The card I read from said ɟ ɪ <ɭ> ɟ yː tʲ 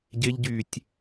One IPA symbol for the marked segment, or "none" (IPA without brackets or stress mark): ʎ